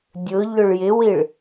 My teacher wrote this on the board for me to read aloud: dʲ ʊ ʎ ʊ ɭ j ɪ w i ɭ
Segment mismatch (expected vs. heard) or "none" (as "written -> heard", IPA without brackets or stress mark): none